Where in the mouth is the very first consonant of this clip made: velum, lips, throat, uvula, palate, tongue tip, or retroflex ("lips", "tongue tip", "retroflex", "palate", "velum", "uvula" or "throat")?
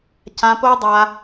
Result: palate